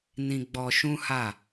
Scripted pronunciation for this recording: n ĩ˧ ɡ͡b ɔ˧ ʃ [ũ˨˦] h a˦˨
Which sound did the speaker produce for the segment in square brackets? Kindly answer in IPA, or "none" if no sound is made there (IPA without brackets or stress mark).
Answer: ũ˦